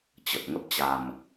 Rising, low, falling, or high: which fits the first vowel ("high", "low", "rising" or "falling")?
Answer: low